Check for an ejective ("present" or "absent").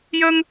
absent